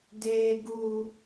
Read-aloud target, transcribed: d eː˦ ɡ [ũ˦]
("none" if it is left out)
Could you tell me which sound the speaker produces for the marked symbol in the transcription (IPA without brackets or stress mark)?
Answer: u˦